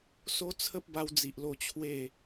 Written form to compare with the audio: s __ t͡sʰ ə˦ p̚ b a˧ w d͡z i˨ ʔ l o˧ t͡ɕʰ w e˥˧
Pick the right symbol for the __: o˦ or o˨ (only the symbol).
o˦